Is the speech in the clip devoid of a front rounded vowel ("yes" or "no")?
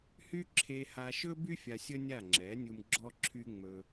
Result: no